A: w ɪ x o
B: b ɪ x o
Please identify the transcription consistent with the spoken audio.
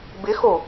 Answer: B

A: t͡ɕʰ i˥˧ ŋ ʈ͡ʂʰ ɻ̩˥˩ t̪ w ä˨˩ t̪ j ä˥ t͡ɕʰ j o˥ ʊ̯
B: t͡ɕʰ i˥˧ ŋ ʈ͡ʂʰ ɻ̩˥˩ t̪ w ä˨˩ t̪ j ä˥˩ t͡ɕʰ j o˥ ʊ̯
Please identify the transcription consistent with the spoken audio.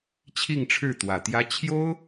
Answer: A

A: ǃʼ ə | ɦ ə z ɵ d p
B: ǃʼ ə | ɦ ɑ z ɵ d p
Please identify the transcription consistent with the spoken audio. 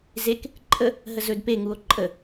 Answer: A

